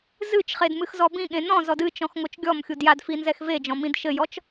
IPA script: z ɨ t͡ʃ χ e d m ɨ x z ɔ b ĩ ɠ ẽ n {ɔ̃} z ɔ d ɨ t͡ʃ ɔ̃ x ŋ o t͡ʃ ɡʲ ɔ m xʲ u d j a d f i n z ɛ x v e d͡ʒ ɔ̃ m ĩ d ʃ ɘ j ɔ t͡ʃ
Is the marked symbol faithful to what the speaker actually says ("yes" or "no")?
yes